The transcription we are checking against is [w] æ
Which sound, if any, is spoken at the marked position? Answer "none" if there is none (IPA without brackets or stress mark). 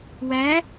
w